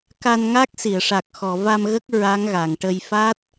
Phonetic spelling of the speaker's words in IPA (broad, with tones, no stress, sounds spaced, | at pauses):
k a˧ n ŋ a˦˥ k̚ s i˨˩˨ ə̯ ʂ a˨˩ k̚ x ɔ˨˩˨ v a˧ m ɣ ə˦˥ k̚ ɹ a˧˥ ŋ ɣ a˨˩˨ ŋ ʈ ə˧ j f a˦˥ t̚